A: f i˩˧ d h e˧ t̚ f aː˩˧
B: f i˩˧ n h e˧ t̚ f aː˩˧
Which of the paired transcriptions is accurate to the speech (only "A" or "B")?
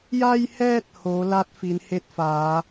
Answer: B